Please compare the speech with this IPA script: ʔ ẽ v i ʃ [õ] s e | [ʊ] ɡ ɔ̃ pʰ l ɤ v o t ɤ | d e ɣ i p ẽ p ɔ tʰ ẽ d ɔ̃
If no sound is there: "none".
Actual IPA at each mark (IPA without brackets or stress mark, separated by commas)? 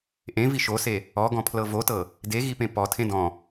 o, ɔ